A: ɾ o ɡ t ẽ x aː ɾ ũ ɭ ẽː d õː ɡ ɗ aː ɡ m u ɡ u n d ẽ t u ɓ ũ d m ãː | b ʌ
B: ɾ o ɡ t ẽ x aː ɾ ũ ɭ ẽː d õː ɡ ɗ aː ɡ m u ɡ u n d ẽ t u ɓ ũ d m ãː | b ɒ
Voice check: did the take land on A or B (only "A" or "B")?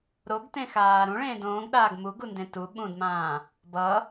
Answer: A